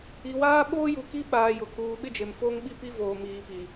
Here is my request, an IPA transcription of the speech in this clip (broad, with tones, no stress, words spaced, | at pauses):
i˨waː˦ ɓoː˦ju˨ki˦ɓaː˨ jʊ˨ kuː˨ ɓɪ˦d͡ʒe˨mfo˦ŋ ɓi˦pi˦ voː˨ miː˨pi˨